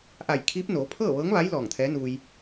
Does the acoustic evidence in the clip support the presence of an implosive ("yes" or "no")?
no